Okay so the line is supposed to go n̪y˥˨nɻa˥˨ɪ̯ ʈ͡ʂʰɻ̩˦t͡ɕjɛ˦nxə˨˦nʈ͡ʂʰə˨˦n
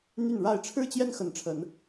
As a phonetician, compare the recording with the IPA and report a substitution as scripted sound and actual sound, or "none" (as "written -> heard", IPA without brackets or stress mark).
none